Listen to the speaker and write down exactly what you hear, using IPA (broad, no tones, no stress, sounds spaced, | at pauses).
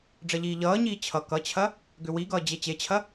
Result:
ɖ͡ʐ ɐ ʎ iː ʎ ʌː ɲ iː t͡ɕʰ ʌ k ʌ t͡ɕʰ ɐ | ɡ ʏ w i ɡ ʌː d͡ʑ e t͡ɕ e t͡ɕʰ ɐ